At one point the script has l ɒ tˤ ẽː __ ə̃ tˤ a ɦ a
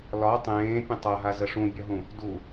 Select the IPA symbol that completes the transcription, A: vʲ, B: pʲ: B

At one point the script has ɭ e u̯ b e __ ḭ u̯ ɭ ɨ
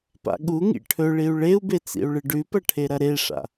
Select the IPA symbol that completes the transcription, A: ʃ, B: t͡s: B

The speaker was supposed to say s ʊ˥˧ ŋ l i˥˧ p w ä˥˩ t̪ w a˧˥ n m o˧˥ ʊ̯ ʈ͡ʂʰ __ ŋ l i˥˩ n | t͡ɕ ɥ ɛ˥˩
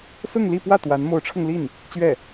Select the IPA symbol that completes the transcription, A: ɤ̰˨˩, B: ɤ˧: B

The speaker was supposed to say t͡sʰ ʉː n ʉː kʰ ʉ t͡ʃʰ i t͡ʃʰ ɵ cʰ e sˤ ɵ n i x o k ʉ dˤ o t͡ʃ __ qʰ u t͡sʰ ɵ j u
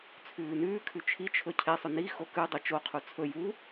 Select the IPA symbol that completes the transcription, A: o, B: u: A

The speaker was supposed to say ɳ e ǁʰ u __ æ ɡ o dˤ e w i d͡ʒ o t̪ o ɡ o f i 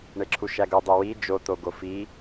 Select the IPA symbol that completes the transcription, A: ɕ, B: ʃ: B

